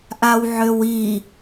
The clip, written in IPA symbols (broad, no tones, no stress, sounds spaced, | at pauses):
ʔ a w ʕ ø w i